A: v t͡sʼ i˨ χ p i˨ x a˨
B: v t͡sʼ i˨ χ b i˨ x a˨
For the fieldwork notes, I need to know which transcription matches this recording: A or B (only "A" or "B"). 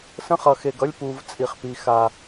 A